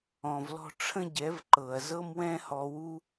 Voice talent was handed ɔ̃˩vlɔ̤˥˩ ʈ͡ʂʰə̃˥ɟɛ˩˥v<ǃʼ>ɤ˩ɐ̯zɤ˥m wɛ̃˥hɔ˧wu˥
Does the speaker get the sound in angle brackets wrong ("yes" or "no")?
yes